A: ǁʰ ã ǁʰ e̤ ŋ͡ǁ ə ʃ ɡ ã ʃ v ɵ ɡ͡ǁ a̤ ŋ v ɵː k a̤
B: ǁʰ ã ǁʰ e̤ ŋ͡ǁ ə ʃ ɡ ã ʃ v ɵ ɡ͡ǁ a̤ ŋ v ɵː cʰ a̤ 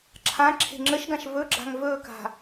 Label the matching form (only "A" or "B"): A